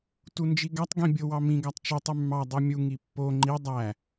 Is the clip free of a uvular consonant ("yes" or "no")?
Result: yes